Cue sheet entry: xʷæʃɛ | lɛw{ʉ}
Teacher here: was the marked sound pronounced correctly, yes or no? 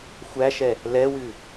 yes